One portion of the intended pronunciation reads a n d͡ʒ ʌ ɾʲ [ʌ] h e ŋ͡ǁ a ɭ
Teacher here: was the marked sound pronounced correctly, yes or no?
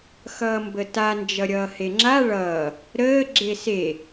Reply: no